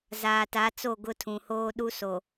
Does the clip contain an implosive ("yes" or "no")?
yes